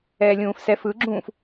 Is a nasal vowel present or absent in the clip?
present